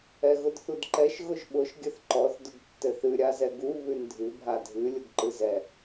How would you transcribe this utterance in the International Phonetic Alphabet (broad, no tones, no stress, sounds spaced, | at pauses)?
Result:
ɛ ɣ ʊ d θ u d ǃ ɛ ʃ ɣ ʊ ʒ ɓ ʊ ʃ ɡʲ ɘ θ ǃ ɔ θ d ʊ ɡ tː ɘ θ ɨ ɾʲ a z ɛ ɡ u β ʉ n dʱ ɨ bʱ a dʱ ɨ lʲ ʊ ɡ ǃ ɨ z ɛ